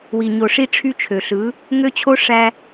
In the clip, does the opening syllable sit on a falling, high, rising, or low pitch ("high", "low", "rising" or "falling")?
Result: low